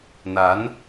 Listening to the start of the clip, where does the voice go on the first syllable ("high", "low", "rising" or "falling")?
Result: rising